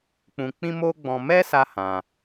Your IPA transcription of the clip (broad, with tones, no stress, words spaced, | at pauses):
k͡pũ˧ k͡pĩ˦mo˦ɡ͡bɔ̃˧ mɛ˦sa˧ hã˧